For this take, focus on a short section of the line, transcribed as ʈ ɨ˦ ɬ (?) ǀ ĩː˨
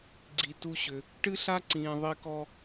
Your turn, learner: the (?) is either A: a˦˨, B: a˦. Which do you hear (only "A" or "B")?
B